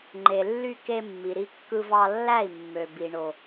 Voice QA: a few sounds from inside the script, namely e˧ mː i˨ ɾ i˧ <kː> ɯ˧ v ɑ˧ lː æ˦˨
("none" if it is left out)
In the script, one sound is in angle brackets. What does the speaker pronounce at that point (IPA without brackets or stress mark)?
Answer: kː